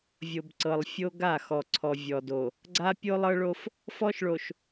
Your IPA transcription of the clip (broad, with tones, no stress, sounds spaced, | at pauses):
vʲ o˨ b ǀ ɤ˨ lˠ fʲ o˦ ɡ a˦˨ x ɔ˨ ǀʰ ɔ˨ vʲ ɔ˨ d o˨ | ɡ͡ǀ a˦ pʲ o˦ lˠ ɤ˦ ɭ o˦ f | f ɔ˦ ʃ ɭ o˨ ʃ